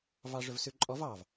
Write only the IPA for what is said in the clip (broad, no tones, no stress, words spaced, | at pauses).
vɑʐɵvsʉǃʼɔv ɑv